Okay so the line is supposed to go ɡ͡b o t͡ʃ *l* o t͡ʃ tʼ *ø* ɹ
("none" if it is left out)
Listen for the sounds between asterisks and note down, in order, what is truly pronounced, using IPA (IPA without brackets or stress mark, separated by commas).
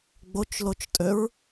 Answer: l, ø